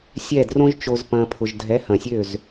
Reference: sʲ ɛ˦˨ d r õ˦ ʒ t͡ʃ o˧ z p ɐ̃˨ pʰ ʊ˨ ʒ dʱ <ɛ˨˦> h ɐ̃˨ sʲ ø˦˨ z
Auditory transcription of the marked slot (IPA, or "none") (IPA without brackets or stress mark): ɛ˨˦